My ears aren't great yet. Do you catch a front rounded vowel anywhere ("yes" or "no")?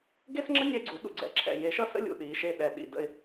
no